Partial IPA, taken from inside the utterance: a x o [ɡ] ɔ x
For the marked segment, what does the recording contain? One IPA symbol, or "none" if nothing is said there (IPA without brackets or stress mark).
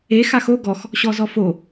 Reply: ɡ